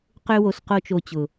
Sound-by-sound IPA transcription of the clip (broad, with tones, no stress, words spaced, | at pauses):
qø˦wo˨˦s qo˦t͡ʃo˧t͡ɕʊ˨